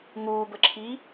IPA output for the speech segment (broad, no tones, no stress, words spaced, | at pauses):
ŋuːbəǁʰiː